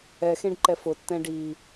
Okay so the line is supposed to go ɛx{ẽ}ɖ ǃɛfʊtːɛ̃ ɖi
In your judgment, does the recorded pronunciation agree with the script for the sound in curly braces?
yes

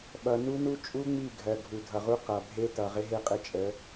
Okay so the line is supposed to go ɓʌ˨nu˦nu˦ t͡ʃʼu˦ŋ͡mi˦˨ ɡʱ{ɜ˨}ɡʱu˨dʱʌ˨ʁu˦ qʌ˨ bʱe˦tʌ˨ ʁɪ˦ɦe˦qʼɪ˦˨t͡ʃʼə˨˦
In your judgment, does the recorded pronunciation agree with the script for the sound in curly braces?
yes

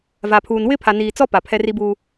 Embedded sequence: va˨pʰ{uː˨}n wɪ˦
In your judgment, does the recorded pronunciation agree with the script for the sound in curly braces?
yes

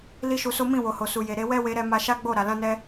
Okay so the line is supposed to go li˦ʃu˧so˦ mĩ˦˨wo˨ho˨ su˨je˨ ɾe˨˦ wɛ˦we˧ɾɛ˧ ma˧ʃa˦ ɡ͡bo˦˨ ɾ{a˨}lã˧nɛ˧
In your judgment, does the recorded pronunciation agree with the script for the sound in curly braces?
yes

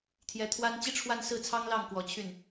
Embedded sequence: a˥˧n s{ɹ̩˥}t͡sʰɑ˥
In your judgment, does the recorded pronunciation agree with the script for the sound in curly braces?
no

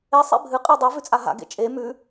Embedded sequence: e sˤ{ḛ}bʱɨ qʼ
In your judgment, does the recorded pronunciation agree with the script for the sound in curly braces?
yes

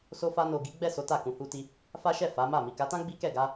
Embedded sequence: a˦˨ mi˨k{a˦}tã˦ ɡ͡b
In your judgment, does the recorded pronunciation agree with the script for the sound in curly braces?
no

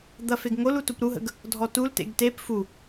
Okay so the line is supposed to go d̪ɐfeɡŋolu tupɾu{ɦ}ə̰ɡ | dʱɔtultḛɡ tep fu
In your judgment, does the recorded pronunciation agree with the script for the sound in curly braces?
yes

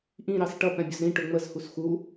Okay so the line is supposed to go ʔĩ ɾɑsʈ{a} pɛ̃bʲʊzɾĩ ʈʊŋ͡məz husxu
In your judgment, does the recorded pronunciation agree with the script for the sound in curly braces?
no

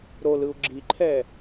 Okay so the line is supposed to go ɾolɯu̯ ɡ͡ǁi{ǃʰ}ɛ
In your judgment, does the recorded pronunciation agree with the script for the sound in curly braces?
yes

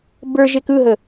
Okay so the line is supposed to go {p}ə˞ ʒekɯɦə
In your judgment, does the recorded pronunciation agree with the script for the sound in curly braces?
no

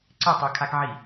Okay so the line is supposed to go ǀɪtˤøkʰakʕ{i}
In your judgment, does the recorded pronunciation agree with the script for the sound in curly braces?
yes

